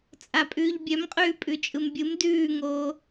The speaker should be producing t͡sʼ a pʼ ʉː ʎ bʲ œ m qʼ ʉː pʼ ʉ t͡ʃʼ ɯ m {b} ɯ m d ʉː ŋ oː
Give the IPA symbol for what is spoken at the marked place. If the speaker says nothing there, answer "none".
bʲ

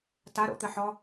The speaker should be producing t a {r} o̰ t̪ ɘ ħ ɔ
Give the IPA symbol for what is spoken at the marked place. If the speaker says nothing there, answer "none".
ɾ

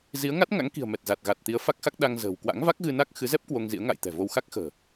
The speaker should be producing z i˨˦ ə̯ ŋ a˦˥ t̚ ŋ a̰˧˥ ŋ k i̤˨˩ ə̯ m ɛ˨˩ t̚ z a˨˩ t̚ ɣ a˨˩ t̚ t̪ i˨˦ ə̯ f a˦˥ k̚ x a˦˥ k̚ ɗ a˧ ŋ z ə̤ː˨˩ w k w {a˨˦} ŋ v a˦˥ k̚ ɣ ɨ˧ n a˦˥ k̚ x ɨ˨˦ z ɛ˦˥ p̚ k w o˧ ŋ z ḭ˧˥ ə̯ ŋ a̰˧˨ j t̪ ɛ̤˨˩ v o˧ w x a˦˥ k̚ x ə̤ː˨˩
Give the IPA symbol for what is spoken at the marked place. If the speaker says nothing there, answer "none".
a̰˧˥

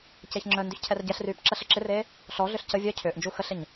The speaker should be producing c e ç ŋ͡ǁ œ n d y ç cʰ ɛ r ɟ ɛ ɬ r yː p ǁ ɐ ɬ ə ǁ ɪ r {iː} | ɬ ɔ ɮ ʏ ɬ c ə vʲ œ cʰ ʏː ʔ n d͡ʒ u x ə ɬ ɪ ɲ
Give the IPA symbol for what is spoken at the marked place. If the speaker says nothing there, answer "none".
eː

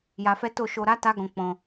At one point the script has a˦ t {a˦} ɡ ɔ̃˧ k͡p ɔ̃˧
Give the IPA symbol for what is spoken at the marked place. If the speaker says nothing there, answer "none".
a˦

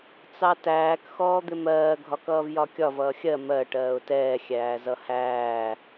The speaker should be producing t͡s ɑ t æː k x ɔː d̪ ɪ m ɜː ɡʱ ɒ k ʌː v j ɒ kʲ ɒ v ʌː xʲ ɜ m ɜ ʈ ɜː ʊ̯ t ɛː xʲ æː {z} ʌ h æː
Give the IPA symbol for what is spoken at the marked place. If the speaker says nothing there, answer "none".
z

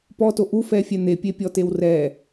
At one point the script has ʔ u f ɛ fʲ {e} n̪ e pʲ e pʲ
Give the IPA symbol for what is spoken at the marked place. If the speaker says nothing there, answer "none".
ɛ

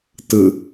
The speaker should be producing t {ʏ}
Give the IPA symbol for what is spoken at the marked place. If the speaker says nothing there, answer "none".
ɨ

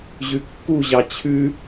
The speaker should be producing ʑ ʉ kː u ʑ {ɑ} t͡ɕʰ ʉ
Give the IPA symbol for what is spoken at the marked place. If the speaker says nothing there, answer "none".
ɑ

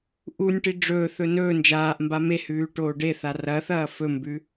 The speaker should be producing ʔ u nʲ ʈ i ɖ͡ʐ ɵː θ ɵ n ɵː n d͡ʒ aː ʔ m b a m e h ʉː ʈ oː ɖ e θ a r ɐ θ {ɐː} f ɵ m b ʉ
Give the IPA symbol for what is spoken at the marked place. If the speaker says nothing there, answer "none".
ɐː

